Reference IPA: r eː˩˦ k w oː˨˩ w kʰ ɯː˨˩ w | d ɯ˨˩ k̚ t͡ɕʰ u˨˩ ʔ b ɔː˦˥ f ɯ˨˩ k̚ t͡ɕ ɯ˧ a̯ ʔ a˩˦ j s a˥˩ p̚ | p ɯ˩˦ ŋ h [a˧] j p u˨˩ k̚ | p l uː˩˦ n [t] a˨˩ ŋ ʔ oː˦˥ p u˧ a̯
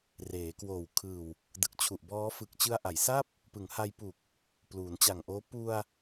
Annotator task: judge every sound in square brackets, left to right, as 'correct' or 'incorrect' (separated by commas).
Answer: correct, incorrect